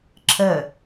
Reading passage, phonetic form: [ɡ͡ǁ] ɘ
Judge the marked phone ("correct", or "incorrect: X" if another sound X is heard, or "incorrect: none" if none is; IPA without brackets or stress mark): incorrect: ǁʰ